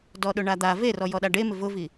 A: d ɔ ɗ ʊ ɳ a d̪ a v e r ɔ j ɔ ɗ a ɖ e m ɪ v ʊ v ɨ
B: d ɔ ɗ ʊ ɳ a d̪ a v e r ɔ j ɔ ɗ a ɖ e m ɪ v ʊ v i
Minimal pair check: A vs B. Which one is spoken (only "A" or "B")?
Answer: B